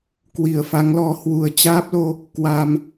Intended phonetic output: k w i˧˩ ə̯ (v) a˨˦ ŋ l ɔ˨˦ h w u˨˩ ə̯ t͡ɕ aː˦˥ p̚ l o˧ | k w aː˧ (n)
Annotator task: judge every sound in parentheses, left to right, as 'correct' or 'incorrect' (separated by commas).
incorrect, incorrect